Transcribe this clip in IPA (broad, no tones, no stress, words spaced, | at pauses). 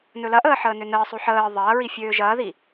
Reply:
nɵlɐʔəː ħəːnønəːsˤo ħəː ðˤɐːɹi fʲøːʒɐːði